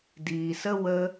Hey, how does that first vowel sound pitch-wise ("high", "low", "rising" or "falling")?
low